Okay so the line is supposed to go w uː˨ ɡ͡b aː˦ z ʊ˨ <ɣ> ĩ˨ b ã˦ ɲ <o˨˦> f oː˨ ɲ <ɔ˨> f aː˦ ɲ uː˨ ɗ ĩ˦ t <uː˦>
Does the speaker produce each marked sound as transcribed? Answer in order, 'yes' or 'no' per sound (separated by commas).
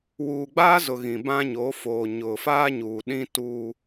yes, yes, no, yes